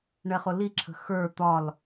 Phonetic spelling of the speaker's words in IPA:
ɳ ɛ χ ʊ l i ǁʰ ə̤ x ə˞ t̪ ɒ l

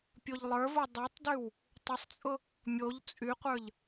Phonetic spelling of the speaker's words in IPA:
pʲ o ʎ lˠ ə˞ v o dˤ o tˤ d y w | tˤ ʊ sˤ t͡sʼ ʊ | mʲ o ʎ t͡sʼ y qʷ ə˞ ʎ

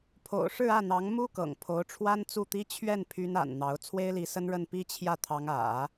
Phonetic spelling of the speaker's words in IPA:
pʰ o̰˨˩ ʊ̯ ʂ ɻ̩˥˧ ä˥˩ n̪ ɑ˧˥ ŋ m u˥ k ɤ̰˨˩ ŋ pʰ o˧˥ ʊ̯ ʈ͡ʂʰ w a˥ n t͡s u˥˩ t̪ i˥ t͡ɕʰ ɥ ɛ˥˩ n pʰ y˥ n a̰˨˩ n n̪ ɑ˧˥ ʊ̯ t͡sʰ w e˥ ɪ̯ l i˧˥ s ə˥ n ɻ ə˥˩ n p i˥ t͡ɕʰ j ä˥˩ t̪ʰ ɑ˧˥ ŋ ä̰˨˩˦

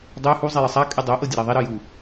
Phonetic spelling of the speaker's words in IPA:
dˤ y h u zˤ i j ə sˤ a kʼ y dˤ o ʔ ɤ dʲ ə ɾ a ðˤ i ɾ ɤ j u

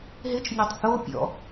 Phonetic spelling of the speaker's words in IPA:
ɦ ɪ t͡ʃ nʲ ɐ tˤ θ o pʲ ɔ̰

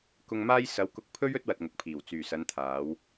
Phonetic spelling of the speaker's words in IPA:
k ʊ˨ ŋ m aː˧ j s ɐ˨˧ w k ʊ˧ k̚ pʰ ɵ˥ ɥ ɵ˥ t̚ w ɐ˨ t̚ ŋ ʊ˨ k̚ pʰ iː˨˩ w t͡s yː˨˩ s ɐ˨˧ n t̪ʰ aː˨˧ w

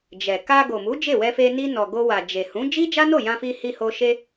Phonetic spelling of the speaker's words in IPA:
d͡ʒ ɛ˨ k a˧ ɡ o˨ m u˨˦ d͡ʒ e˦˨ w ɛ˧ f e˧ n i˧ n ɔ˨ ɡ o˧ w a˨ d͡ʒ e˨ h ũ˨˦ d͡ʒ i˦ d͡ʒ a˦ n o˦˨ j ã˧ f i˧ h i˧ h o˧ ʃ e˧

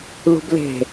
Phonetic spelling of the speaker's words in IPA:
l ṳ b l e̤

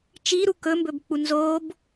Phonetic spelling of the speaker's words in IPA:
t͡ʃ i ɾ u k ɵ m b ɵ b k͡p u n z o b

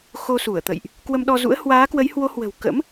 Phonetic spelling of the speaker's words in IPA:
x o˧ s u˧˩ ə̯ t̪ ə̰˧˨ j ʔ | k w ə˧ m ɗ ɔ˧ z ṵ˧˥ ə̯ h w aː˨˦ k w ə˨˦ j h w o˨˦ h w ə̤˨˩ w k ə̰˧˥ m

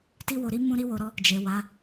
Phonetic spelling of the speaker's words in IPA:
t i˦ w o˧ ɾ i˦ m ũ˦ ɾ i˦ w o˧ ɾ ɔ˦ | d͡ʒ e˨ w a˨˦

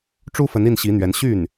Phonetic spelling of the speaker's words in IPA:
ʈ͡ʂ u˥ f ə˧˥ n i˥˩ n ɕ i˧˥ n̪ ɥ ɛ˧˥ n ɕ y˥˩ n

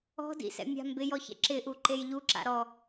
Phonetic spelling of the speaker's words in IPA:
ɔ̤ d ḭ s ɛ̰ mʲ a̤ m b ɪ j ɔ ç ɛ̰ ǁ ɪ ʔ u ǃ e j ʎ u ǁ a̰ ɾ ɔ

